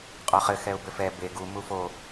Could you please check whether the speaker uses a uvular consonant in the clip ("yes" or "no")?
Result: yes